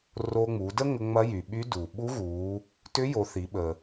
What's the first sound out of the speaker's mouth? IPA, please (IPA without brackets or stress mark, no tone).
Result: r